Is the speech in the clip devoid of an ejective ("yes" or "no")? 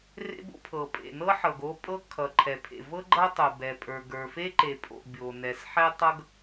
no